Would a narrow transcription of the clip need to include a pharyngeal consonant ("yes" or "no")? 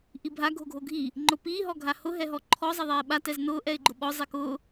no